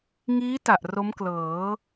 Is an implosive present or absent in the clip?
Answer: absent